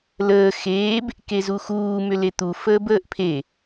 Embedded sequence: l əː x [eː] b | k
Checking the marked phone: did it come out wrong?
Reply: no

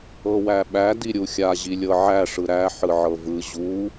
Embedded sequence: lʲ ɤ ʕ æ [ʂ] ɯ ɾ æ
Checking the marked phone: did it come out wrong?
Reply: no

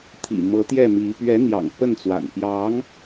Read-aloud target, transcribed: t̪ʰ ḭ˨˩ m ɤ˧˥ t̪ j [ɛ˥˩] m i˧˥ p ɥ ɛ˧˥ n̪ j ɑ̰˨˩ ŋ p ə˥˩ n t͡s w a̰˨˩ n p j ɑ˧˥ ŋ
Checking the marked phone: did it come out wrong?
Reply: no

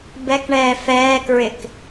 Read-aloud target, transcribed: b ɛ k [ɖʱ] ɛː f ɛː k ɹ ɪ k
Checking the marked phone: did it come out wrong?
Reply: yes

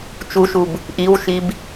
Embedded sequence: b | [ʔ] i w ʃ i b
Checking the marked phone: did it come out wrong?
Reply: no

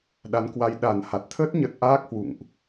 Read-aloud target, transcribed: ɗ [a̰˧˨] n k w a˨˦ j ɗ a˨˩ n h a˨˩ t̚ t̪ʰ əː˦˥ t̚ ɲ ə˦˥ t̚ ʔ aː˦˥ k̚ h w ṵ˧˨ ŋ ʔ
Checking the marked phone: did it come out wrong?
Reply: yes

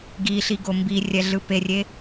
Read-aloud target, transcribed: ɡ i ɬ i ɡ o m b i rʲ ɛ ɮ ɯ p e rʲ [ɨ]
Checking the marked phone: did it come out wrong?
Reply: yes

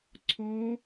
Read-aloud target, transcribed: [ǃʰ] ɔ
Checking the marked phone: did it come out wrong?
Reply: yes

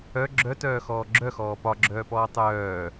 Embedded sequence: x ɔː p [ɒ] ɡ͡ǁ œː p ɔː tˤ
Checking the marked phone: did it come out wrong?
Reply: no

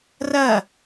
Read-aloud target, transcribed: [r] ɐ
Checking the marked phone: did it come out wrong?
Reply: no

